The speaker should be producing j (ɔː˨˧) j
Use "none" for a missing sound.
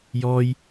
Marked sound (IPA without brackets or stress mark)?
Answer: ɔː˥